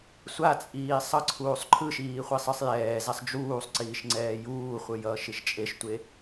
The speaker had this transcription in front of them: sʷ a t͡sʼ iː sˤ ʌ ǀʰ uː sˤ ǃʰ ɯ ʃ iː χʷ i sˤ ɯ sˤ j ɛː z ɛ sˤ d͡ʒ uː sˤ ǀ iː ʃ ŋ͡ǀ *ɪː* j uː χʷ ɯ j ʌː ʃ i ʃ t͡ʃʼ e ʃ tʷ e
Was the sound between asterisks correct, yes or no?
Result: no